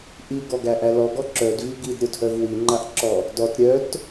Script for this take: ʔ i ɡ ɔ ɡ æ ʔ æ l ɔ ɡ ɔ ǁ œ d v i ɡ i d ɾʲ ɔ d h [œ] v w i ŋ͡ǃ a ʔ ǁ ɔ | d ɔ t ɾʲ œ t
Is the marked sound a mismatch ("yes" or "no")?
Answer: no